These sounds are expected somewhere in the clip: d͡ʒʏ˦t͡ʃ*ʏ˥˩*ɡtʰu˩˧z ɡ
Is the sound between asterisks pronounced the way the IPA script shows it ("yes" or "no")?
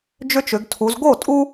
no